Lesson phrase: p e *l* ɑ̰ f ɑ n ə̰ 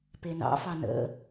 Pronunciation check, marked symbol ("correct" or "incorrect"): incorrect